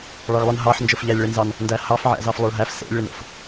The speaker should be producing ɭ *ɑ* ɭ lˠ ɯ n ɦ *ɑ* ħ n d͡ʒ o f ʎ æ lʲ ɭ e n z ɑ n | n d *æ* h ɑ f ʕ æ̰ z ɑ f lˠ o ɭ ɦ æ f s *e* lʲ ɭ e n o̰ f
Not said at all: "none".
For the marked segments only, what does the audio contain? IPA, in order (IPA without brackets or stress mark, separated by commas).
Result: ɑ, ɑ, æ, ḛ